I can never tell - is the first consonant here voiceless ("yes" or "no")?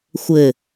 yes